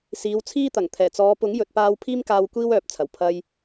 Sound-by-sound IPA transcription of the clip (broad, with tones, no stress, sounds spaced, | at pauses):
s iː˨˧ w t͡sʰ iː˥ t̪ ɐ˨˩ ŋ t̪ʰ ɛː˨˩ t͡s ɔː˨˧ p ʊ˨˥ ŋ j ɵ˨ t̚ p aː˧ w pʰ iː˥ m k aː˧ w kʷ iː˥ w œː˨ p̚ t͡sʰ ɐ˨˩ w pʰ ɐ˧ j